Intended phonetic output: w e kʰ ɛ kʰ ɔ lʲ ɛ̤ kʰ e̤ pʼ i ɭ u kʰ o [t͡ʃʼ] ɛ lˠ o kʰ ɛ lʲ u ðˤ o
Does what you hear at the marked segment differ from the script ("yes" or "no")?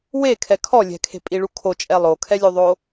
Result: no